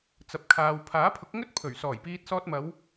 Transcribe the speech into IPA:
t͡s ɐ˨ p̚ kʰ aː˨ w pʰ aː˨˥ pʰ ʊ˨˥ k̚ ŋ ɵ˥ t̚ pʰ ɵ˨˩ ɥ s ɔː˨˩ j p iː˧ t̚ s ɔː˧ t̚ m ɐ˨˧ w

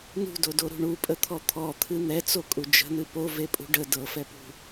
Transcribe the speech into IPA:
n ṳ d o d o ɾ ṳ ɳ u pʼ ə t̪ʰ ɔ t̪ʰ ɔ t̪ʰ ɨ n̪ ɛ t͡s o kʼ u d͡ʒ ə̤ n̪ ɨ p o v e pʼ ṳ ɖ ə d ɤ f ɛ p ṳ

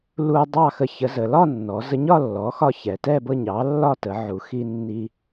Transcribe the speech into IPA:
l u˧ dˤ ɑ˥˨ x ə˧ ç ə˩˥ z ə˩˧ l ɒ˥˨ nː ɔ˩˧ z ə˧ ɲ ɒ˥˨ lː ɔ˩˥ x ɒ˧ ç ɛ˩˧ t ɛ˥˨ b ɤ˥˨ ɲ ɑ˩˥ lː ɒ˥˨ t ə˩˧ ʕ u˩˧ x i˧ nː i˧

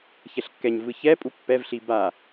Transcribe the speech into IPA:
ç ɛ ɬ kː ɛ ɲ v ɯ ç ɛ pʼ u pː ɛ v ɬ i b a

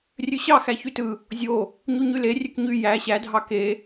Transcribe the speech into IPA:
rʲ ø ɕ ɑ x æ ç y t ɯ | zʲ o | ɲ u ɲ y l e rʲ ø k ɲ y j æ ɕ æ dʱ ɑ k e

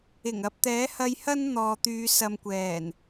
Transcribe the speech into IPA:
ɪ˨˩ ŋ ɐ˨ p̚ t̪ ɛː˨˥ h ɐ˧ j h ɐ˥ n n̪ ɔː˨ t̪ yː˨˧ s ɐ˧ m kʷ ɛː˨˩ n

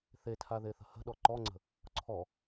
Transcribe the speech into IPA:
θ e tʰ a ð e θ ə̤ h ə̤ ɗ ɔ ǃ ɔ ŋ͡ǀ ə̤ | ǀʰ ɔ

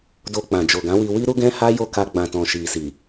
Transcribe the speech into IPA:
d o˧ k͡p ã˨ d͡ʒ o˨ ɡ ã˨˦ w i˧ w i˦ ɾ u˦ ɡ ɛ̃˦ h a˦ j o˦˨ k a˧ ɡ͡b ã˨ t ɔ̃˨ ʃ i˨ s i˨

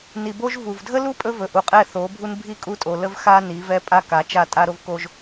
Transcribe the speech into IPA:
n i˨ b o˦ ʒ v u˨ v dʱ ə˦ l u˦ pʼ ɵ˦ v ɵ˨ ʔ u˨ qʼ ɛ˦˨ θ o˨˦ bʱ u˦ n bʱ i˦ kʼ u˦˨ tʼ o˨ l ə˦ v x a˦ n i˨˦ v ɛ˦ pʼ a˦ k a˨˦ t͡ʃ a˦˨ tʼ a˦ ɾ o˦ v k o˦ ʒ

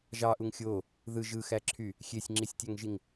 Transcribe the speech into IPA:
ʒ ɑ ʔ u ŋ xʲ o | ð ɯ ʒ ɯ x æ ǁʰ y | xʲ e sʲ ŋ͡ǁ i sʲ tʲ æ ŋ ʒ i ŋ

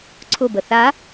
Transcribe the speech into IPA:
ǀʰ ʊ b ə θ a

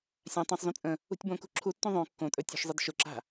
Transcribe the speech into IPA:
sʲ ã tˤ õ sˤ z ũ t͡sʼ ə̃ | ṳ tʲ b õ k ṳ ǁʰ u tː ũ ðˤ õ kː õ tʼ ɵ tʲ ṳ ʃ zˤ ə d ʃ ʊ ǁ a̤

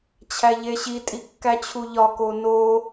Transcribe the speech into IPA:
t͡ɕʰ æ ʎ e ɕ i tʼ i kː æ t͡ɕʰ u ʎ ɒ k o n o

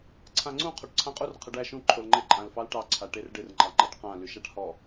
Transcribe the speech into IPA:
ǀʰ ã ŋ͡ǀ ũ qʰ o ʈ ǀʰ ã qʼ u r qʰ ə ɖ æ ʃ ũ ǃʰ o l ŋ͡ǃ ɪ ǃʼ ã l f ɑ l ʈ ɑ ǀʰ a ʈ e r ɖ ɪ r ŋ͡ǃ ɑ ŋ͡ǃ ɑ ʈ q ã l y ʃ a ʈ h ɔ

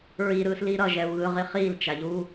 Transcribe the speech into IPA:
ɹ i ɾ ɯː s l i ɾ ʌ ʒ ɛ u̯ ɣ ɯ ʁ i χ iː l t͡ʃ a ʎ uː

